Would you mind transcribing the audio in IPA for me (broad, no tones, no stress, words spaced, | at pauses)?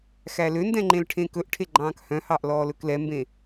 xæløndɛ̃ ŋ͡ǃẽlʈʰẽkɵʔʈʰe ɡ͡ǃɑ̃ːkhœ̃hɑʔ lɔːlɵklɛmbẽ